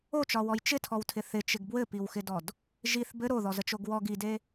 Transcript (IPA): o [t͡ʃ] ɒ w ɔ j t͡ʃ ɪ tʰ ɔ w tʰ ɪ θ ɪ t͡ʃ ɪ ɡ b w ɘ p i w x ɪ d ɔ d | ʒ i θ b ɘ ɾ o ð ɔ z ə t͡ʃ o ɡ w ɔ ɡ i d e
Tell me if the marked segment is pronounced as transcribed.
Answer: yes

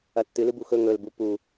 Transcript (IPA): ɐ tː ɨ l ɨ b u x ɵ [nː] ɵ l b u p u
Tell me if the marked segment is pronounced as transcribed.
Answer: no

